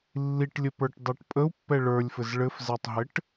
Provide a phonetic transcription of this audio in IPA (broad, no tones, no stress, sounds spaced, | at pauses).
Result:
lː i ʈ lʲ ə p ə˞ ʈ dˤ ɛ ʈ pʼ ə u̯ pː ɛ ɭ ə˞ lʲ f ɘ z ɭ ɘ f z ɛ tˤ ɦ ɘ ʈ